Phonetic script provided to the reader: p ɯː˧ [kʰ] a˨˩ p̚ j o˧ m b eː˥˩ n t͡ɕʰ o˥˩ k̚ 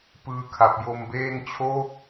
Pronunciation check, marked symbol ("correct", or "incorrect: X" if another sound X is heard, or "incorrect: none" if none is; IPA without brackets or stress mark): correct